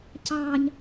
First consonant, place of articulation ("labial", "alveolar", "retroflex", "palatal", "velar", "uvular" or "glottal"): palatal